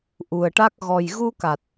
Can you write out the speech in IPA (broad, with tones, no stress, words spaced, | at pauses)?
ʔu˨˩ə̯ʈa˦˥k̚ ɣɔ˨˩j ɣu˧ka˨˩t̚